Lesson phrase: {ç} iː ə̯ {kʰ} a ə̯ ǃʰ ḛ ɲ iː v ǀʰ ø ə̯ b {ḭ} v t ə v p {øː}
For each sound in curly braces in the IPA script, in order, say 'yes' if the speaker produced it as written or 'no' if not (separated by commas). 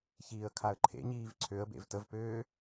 yes, yes, no, yes